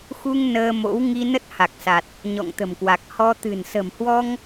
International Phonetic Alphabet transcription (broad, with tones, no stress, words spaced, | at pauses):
xu˧ŋ nəː˧mo̰˧˥w ŋi˧nə˦˥t̚ha˨˩k̚sa˨˩t̚ | ɲɔ̰˧˨ŋt̪ə̤˨˩mkwa˨˩k̚ hɔ˧ t̪ɨ̤˨˩nsə̤˨˩mhwɔ˧ŋ